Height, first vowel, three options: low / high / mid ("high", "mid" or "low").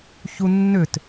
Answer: high